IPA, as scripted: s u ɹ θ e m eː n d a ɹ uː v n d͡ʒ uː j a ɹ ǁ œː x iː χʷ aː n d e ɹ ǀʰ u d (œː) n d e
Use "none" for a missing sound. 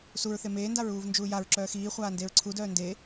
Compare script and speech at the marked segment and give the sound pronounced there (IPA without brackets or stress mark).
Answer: œː